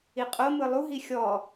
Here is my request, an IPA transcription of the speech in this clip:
i qʼ o m ɯ lˠ u ɦ i xʲ ɔ

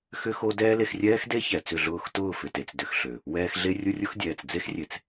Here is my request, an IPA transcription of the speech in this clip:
x ʏ˦ x o˦ d ɛː˦ l e˧ x rʲ ɛː˦ x d e˦ ç ɛ˨ t͡s ʏ˦˨ ɮ ʊː˦˨ x t ʊː˦˨ f ʏ˨ t e˨ t͡s d ʏ˧ x ɬ ø˨ | w ɛː˧ x ɮ e˦ rʲ ʊ˦ rʲ ʊ˦ x dʲ ɛː˨ t͡s d͡z e˦ x rʲ e˨ t͡s

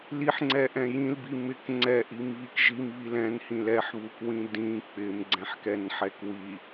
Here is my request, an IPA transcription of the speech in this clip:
l i ħ ŋ͡ǀ ɛ ʔ ɛ̃ j ĩ l b i m ɪ k ŋ͡ǀ ɛ ʔ i m β i k ʒ i m β i l ɛ̃ n h ĩ l ɛ ħ β u k w ĩ d ĩ k͡p ɪ m ɡ͡ǀ ɛ̃ ħ k ɛ n ħ ɛ k w i

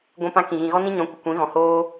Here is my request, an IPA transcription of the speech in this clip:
ɡʷ ɛ̃˦ p ã˦ k ĩ˨ ɣ ĩ˨ ɣ ɔ˦ n ĩ˦ ɲ ɔ̃˨˦ kʷ ə˨ kʷ ĩ˨˦ ɣ ɔ̃˨ h oː˦

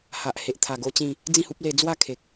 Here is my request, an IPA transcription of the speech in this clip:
h a˨ ʔ h e˨ ʔ t̪ʰ a˨˩ ɡ o˦ t͡ɕ ĩ˥˧ | d͡z ĩ˥˧ h u˦ p̚ l e˧ d͡z w a˥˧ kʰ e˨ k̚

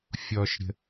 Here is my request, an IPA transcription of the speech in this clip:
fʲ ɔ ʃ ɾʲ ə̤

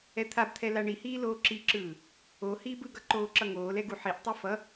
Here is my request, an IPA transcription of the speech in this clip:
ɛ t̪ʰ a b t̪ʰ ɛ l a ɳ i h iː l oː ǁ i ǁ ɯː | o h iː b ɯ ɡ ʌ ǃ oː ǁ ʌ ŋ oː l ɛ ɡ u ħ i ʔ tˤ e f ʌ

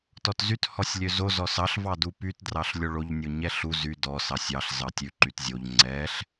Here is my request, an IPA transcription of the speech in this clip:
t ɔ t z y t h ɔ sʲ lʲ ø z o z ɔ s ɑ ɬ v ɑ d u p y t d r ɑ ɬ lʲ o ɭ o ʎ nʲ o ɲ ɛ ɬ u z y d ɔ s ɑ sʲ ɑ ɬ z ɑ tʲ ʉ ǃ y t zʲ o ʎ ŋ͡ǀ ɛ ɬ

